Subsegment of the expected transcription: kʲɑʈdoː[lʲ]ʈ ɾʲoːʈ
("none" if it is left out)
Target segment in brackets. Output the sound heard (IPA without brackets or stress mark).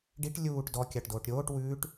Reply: none